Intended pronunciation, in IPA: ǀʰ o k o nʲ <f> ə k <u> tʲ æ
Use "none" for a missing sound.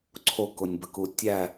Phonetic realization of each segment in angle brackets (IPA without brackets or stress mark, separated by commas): b, u